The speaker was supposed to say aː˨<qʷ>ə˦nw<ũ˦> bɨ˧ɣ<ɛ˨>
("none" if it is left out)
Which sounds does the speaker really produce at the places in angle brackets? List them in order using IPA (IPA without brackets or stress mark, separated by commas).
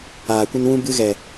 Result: kʷ, ũ˦, ɛ˨